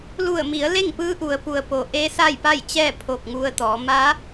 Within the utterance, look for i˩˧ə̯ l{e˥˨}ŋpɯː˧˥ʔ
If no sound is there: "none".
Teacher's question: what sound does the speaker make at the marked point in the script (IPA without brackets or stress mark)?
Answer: e˥˨